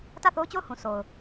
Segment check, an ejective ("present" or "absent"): absent